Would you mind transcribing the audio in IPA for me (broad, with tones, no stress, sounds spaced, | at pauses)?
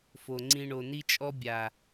f o˨ ŋ͡ǀ ĩ˧ ɳ o˨ n i˧ t͡ʃʼ ɔ˧ bʲ a˨